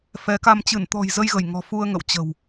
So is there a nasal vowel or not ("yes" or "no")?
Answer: no